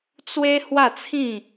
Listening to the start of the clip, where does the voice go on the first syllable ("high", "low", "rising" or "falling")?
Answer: high